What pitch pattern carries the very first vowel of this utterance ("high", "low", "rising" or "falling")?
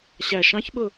low